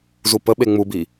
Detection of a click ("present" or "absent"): absent